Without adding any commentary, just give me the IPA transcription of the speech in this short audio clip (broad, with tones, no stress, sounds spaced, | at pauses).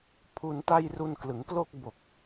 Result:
pʰ u˧ n t a˥˩ j r u˧ n k l ɯ˩˦ ŋ k l o˥˩ k̚ b o˨˩ k̚